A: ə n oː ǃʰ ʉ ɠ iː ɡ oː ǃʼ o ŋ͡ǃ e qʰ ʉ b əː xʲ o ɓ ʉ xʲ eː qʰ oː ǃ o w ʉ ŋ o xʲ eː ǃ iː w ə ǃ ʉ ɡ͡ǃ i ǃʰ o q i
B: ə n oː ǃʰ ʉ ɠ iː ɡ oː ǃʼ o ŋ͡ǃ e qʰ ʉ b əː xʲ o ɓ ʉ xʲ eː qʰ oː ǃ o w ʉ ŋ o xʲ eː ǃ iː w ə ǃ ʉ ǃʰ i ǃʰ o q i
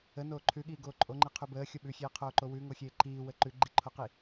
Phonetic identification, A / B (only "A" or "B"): A